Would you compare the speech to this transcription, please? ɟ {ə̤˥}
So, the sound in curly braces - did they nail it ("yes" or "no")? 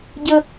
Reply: no